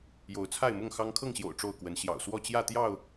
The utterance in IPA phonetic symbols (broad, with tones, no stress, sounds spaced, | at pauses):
j o˨˦ ʊ̯ t͡sʰ a˥˨ ɪ̯ m ʊ˥˨ ŋ x ɑ˦ ŋ kʰ ɤ˥˨ ŋ ɕ j o̰˨˩ ʊ̯ ʈ͡ʂ o˥˨ ʊ̯ k w ə˨˦ n ɕ j ɑ̰˨˩ ʊ̯ s w ɔ˥˨ t͡ɕ j ä˥˨ t̪ j ɑ˥˨ ʊ̯